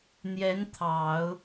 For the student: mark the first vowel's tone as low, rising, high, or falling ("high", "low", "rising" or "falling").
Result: rising